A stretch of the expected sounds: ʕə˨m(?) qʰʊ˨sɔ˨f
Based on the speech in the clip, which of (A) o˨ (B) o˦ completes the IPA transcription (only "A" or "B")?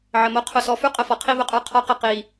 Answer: B